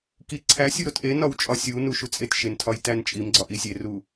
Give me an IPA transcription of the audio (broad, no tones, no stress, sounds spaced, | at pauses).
k i ǀʰ æ sʲ u ɾ o t ʔ e n ɒ w t͡ʃʼ ɒ sʲ u n u ʃ u t͡sʼ e t ʃ e n tʰ ɒ j t æ n t͡ʃʼ i m ɡ͡ǀ ɒ ʔ i sʲ e r u